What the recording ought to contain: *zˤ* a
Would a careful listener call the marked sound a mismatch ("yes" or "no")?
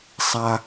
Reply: yes